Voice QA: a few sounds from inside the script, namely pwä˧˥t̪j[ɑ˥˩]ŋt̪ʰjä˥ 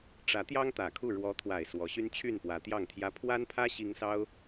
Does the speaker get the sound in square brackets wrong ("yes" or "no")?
no